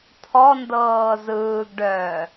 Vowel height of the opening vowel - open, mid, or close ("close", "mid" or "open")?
mid